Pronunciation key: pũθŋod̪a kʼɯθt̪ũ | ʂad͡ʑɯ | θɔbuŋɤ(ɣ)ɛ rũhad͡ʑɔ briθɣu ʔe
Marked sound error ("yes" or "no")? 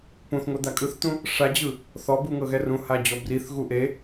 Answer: no